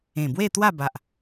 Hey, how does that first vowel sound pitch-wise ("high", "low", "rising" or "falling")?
low